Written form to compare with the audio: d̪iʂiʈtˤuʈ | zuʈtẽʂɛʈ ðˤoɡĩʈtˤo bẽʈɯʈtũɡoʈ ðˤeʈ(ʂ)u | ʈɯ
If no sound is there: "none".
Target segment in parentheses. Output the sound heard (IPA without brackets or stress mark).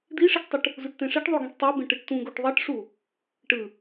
ʂ